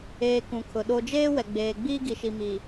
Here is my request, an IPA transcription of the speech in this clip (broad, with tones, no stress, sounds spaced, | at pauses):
eː˨ k ũ˨ kʰ ʊ˨ ɗ o˨ d͡ʒ eː˦ w ɛ˨ ɡ͡b eː˨ ɡ͡b iː˦ ɡ i˨ ʃ i˨ m i˨